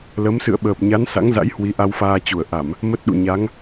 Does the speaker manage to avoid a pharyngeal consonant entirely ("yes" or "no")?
yes